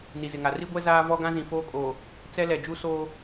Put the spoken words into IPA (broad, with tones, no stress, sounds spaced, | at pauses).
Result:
n i˨ z ɪ˨ ŋ a˨ r i˦ ɡʷ ɛ˦ z aː˦ v ɔ˦ ɡ ã˦ z ĩ˨ f oː˦ kʼ oː˨ | t͡s ɛ˦ l ɛ˨ d͡ʒ u˦ s oː˦